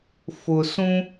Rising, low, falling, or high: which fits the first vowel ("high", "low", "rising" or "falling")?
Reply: low